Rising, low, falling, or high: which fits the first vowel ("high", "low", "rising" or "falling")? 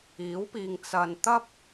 rising